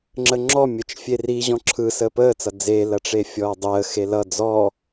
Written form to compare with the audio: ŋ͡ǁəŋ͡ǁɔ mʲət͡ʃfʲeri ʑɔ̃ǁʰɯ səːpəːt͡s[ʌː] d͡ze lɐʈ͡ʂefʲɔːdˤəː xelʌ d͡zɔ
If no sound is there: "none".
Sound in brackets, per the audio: ʌ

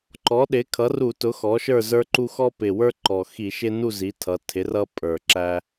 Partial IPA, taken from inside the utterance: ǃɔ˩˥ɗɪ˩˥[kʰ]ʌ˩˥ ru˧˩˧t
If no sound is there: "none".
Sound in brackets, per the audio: kʰ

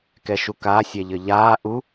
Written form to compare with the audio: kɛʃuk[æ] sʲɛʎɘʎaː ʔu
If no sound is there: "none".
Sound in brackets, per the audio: a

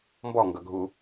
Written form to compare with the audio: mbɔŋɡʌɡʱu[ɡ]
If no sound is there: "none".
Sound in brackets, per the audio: none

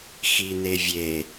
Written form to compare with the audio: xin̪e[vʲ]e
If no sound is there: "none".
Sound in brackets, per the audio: vʲ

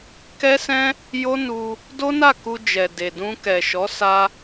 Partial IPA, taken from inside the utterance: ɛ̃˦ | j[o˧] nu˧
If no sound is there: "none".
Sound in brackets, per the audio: o˦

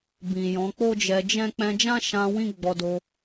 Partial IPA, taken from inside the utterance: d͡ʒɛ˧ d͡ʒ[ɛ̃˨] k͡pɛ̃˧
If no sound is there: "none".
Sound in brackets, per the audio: ɛ̃˦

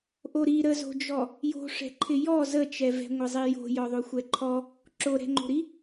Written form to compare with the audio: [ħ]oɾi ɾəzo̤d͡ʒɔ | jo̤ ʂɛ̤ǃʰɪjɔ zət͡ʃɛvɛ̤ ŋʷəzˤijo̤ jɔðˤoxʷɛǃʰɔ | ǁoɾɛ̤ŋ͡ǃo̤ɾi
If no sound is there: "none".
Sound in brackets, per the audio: ʔ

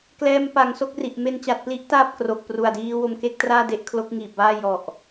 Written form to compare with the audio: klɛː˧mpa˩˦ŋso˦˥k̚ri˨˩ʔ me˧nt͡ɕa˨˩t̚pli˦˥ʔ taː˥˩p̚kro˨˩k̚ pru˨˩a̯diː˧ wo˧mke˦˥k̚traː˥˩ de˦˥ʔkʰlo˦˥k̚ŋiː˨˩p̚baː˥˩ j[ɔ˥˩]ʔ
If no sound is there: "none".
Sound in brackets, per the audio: ɔ˨˩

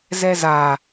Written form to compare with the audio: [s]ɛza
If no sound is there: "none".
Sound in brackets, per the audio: z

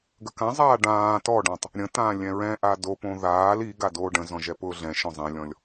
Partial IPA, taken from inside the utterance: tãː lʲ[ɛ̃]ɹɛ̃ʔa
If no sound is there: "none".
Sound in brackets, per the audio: ɛ̃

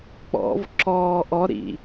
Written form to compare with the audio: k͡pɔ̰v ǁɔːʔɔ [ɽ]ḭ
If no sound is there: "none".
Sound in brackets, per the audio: ɾ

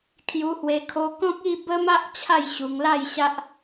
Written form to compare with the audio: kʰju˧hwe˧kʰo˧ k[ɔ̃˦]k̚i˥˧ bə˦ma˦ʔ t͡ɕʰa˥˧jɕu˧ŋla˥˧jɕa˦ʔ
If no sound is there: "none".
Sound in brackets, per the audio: ɔ̃˦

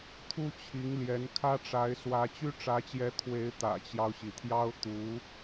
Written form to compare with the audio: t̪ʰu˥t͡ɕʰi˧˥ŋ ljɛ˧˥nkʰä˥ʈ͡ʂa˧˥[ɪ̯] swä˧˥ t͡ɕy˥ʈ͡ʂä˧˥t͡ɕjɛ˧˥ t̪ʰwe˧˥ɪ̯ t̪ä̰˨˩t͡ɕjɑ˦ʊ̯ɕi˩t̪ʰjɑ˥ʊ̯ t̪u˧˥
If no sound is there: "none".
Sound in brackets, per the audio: ɪ̯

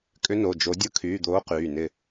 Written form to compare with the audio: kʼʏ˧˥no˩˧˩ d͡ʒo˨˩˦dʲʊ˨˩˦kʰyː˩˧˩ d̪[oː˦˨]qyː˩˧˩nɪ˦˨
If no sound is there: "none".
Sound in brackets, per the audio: oː˧˥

